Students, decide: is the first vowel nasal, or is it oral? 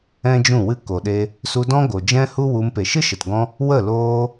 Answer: nasal